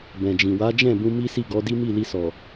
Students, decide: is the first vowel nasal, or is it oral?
nasal